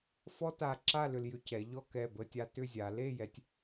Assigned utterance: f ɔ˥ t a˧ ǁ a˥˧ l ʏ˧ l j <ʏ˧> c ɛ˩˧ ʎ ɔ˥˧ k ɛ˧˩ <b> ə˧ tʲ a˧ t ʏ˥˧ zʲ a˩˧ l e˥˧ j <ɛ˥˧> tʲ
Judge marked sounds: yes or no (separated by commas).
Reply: yes, yes, no